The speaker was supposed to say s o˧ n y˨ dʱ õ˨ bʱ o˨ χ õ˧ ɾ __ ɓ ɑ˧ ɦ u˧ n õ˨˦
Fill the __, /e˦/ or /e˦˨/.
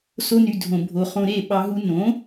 e˦˨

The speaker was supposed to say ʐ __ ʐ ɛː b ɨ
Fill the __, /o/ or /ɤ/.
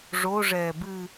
o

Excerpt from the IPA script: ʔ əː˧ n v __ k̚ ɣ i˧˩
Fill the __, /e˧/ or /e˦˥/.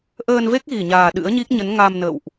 e˦˥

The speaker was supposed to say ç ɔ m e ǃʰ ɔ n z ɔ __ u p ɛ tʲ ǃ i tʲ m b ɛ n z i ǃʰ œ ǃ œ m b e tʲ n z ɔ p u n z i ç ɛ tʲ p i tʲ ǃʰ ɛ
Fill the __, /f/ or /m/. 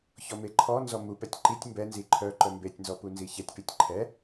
m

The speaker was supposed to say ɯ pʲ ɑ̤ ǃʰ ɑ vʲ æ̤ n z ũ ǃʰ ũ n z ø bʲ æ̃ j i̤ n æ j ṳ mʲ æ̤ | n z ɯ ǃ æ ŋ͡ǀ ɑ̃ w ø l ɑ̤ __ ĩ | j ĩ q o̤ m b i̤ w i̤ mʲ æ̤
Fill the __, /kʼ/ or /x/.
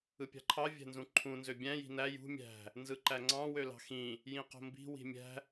x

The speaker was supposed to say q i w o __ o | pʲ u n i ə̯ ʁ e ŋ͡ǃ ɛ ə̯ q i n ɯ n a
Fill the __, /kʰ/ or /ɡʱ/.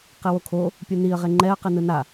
kʰ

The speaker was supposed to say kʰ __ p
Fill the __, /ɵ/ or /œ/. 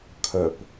œ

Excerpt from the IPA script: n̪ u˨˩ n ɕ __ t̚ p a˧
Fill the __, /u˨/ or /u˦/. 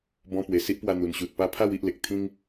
u˨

